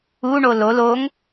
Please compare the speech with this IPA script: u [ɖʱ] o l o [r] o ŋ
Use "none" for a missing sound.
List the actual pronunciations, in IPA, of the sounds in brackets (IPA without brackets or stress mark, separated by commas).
ɳ, l